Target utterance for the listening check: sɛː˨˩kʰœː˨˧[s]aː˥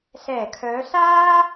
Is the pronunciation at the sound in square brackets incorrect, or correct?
correct